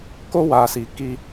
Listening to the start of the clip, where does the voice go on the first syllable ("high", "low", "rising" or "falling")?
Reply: high